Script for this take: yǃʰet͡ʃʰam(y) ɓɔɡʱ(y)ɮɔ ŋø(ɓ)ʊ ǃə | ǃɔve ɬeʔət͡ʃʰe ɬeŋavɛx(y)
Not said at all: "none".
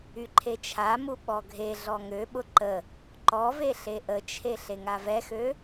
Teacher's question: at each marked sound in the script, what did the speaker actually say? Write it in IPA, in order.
u, e, ɓ, ø

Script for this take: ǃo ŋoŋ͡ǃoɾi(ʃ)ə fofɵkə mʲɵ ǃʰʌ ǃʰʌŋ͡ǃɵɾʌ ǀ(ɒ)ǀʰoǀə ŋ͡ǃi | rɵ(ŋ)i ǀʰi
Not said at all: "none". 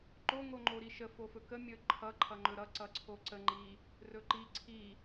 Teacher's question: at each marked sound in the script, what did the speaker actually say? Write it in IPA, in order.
ʃ, ʌ, ǃ

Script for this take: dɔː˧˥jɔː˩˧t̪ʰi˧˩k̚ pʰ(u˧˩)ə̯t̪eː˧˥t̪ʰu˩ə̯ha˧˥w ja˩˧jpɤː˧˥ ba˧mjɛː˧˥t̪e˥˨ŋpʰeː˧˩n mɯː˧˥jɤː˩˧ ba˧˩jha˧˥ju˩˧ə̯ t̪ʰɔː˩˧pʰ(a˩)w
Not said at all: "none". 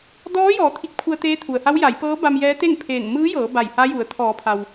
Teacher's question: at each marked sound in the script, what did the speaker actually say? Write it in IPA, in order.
u˧, a˩

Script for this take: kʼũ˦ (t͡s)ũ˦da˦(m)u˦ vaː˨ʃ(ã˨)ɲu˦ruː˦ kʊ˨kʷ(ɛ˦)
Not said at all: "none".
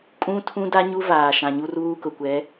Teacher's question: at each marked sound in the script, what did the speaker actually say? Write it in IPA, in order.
tʰ, ɲ, ã˨, ɛ˨˦

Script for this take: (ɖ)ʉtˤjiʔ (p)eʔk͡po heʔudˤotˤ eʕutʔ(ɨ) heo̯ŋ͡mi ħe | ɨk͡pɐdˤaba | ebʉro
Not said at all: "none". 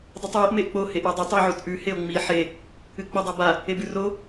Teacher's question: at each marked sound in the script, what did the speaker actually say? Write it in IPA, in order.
dˤ, m, ʉ

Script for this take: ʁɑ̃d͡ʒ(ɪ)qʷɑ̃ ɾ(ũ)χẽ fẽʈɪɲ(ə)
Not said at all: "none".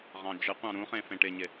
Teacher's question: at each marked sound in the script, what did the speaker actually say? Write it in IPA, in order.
ɪ, ũ, ɪ

